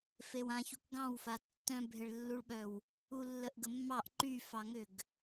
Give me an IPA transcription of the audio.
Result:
fewãçuk ɡɑ̃wfa tːœ̃bʱeɭlːuɭɓœw | ulːəʔɡəmːɑʔ ǃyfɑŋʏɡ

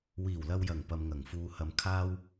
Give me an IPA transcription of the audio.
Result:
wiː˨˩wlɐ˨wjɐ˨˩ŋ pɐ˨mŋɐ˨˩ŋfuː˨ hɐ˨mkʰaː˧w

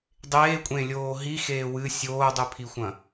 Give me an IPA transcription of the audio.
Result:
dˤeːkʷʼẽlʲoː ɦixeː wɨ sʲoːdˤʉpʰixʷɐ̃

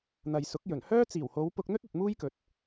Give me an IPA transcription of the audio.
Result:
n̪ɐ˨jsʊ˨˥k̚ jɵ˨˩nhœː˥ t͡siː˨˩who˨˧w pʊ˧k̚n̪ɵ˥t̚ɐ˨t̚ muː˥jkɵ˨t̚

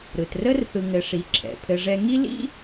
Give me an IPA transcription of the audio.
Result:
ɾɯ˩trə˥rθɯ˨ ŋɘ˨ʂi˨ǁʰɛ̰˩ pʰɘ˦ʐɛ˥ ŋi˥lḭ˥

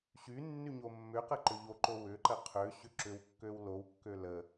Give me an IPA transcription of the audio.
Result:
ɕynːy ɲomːʏqə ǃʏʎoǃo wʏǃə qʰø ɕʏǁʏwkːøw lowkːø lə

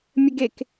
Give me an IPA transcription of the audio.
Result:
mʲəɡek

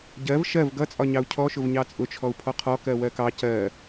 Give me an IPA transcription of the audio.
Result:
ɟɜv ʃɜv ɡʌt͡sʼɒɲɑu̯ cʰɔʃʊv ɲɑt͡sʼʊt͡ʃʰɔu̯ pʰɔqʰɔ kɜwɜkɑ cɜ

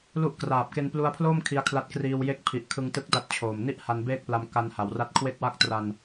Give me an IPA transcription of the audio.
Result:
lu˥˩ʔ kraː˨˩p̚ke˧nplu˧a̯pʰloː˥˩m kʰi˧a̯kʰla˦˥t̚ kriː˧w je˥˩k̚ pʰi˨˩ʔ kʰɯ˧ŋtɯ˦˥k̚ da˦˥t̚t͡ɕʰoː˨˩m ni˥˩ʔ ha˧nbeː˥˩k̚pla˧m ka˧nha˩˦wra˦˥t̚ kʰwe˥˩k̚wa˥˩k̚tra˧n

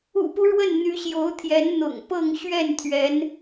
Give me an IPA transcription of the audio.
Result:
ṵ˨˩pu˦ ɻwə˥˩nn̪y˧˥ɕjo˧˥ʊ̯t̪ʰjɛ˧˥n n̪ʊ̰˨˩ŋpɤ˥˧ŋ ɕɥɛ˥˩nt̪ʰɥɛ˧˥n

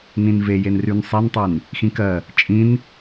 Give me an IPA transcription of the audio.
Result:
nĩnve jenryn sˤentˤyn | xĩkɜ | t͡ʃʼĩn

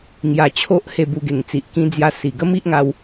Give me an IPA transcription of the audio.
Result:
ŋja˧t͡ɕʰo˦ʔ he˥˧bu˧ɡe˨˩ŋ t͡si˨ʔkĩ˧d͡zja˧ si˨˩ ɡə˦mi˦ʔ ŋa˧w

